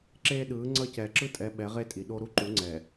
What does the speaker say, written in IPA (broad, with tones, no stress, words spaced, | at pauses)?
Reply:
ǁeː˦ɗɯː˨˦ ŋ͡ǀʌ˦˨cɛː˨ǁɯ˦tʼɛ˨˦ ɓɛ˨˦ʁe˦tʼi˨ ɗo˦ ɾu˦ǃu˨˦ŋ͡ǀɛː˨